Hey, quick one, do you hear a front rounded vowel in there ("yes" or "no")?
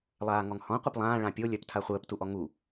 yes